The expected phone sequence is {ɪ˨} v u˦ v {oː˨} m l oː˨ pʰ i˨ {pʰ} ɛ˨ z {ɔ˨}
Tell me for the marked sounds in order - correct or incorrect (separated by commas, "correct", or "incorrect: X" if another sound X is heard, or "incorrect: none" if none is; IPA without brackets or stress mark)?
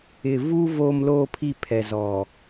correct, correct, correct, correct